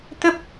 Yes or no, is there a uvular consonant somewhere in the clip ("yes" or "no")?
no